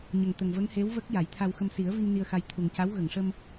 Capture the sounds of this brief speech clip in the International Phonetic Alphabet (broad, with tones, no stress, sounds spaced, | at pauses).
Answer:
ɲ ə˨˩ ŋ t̪ ə˨˩ ŋ v ə˧˥ ŋ h e˧˥ w v ə˦˥ k̚ j a˨˩˦ j t̪ʰ a˧ w x ə˧ m s i˨˩˦ ə̯ v i˧ ŋ n i˧ ə̯ x a˧ j t̪ʰ u˨˩ ŋ c a˧˥ w ɣ ə˨˩˨ ŋ ʂ ə˧ m